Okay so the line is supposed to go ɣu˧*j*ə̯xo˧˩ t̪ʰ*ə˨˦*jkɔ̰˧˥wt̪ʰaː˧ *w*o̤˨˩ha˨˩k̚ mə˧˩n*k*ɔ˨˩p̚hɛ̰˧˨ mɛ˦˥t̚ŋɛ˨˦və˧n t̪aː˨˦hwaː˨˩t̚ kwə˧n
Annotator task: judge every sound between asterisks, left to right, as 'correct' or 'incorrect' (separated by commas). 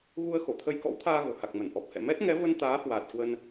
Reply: incorrect, incorrect, incorrect, incorrect